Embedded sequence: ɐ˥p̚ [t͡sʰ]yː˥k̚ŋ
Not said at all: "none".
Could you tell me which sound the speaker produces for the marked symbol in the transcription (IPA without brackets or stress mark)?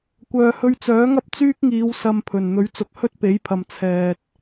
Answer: t͡s